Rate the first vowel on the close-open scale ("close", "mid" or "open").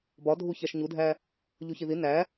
open